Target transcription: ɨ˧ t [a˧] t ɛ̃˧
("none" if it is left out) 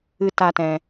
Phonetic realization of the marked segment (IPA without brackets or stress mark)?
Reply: a˧